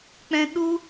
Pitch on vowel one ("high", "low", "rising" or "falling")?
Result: high